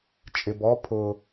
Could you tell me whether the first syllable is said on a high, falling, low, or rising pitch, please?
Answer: low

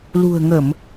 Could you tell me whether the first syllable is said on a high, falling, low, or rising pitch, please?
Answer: low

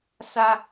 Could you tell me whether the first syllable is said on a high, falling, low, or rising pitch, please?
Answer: high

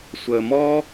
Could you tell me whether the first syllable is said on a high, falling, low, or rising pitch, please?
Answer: low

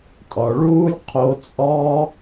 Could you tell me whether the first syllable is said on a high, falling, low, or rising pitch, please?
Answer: low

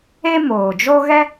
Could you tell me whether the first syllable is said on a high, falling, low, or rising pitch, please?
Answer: high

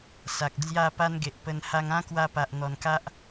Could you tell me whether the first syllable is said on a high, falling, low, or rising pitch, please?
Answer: low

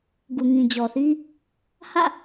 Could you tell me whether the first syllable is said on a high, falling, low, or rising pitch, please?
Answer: low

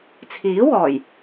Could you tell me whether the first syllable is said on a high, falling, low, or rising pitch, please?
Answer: rising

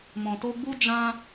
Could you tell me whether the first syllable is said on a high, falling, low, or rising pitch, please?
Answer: low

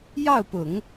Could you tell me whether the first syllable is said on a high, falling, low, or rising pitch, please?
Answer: falling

